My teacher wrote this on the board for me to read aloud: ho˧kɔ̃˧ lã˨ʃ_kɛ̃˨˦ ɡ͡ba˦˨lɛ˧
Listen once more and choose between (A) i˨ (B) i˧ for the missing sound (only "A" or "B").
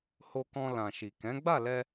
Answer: A